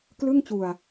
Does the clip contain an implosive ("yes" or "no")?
no